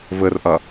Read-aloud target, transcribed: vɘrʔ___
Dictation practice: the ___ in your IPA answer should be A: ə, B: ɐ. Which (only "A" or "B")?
B